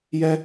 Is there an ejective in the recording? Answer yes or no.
no